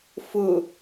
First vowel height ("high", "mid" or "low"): high